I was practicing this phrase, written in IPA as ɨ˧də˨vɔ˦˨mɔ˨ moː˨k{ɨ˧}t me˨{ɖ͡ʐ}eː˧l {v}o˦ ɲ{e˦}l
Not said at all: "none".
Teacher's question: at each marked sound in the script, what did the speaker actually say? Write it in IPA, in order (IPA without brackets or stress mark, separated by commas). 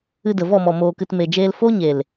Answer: ɨ˨, d͡ʒ, f, e˨